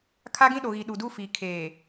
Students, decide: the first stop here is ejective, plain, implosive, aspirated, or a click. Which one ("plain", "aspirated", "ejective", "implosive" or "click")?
aspirated